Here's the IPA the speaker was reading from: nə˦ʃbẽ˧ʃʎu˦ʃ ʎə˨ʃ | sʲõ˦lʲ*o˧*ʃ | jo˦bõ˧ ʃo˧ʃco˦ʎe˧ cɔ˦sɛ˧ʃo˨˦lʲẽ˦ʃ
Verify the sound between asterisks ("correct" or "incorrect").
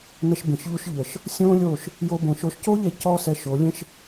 incorrect